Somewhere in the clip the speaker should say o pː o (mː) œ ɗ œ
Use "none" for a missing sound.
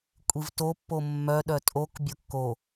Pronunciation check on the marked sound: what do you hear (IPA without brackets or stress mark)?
mː